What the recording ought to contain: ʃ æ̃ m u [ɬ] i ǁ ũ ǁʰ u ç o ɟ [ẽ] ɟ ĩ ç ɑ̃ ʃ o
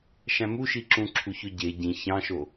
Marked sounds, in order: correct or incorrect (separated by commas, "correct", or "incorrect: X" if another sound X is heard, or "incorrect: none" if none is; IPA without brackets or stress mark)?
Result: incorrect: ʃ, incorrect: e